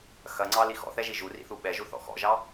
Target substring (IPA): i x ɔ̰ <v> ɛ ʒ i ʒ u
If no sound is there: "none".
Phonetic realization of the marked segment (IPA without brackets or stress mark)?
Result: θ